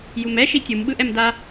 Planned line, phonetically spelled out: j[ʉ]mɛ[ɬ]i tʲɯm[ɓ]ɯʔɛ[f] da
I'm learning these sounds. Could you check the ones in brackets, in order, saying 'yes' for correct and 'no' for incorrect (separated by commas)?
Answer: no, no, yes, no